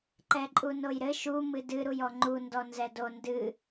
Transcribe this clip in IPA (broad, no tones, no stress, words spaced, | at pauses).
ǃɛǃʼunojɾɘ ʃu mɨdɨ ɾujɔŋ͡ǃu ndɔnzɛdo ndɨ